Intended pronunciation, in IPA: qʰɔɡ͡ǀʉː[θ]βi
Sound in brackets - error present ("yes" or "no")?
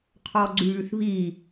no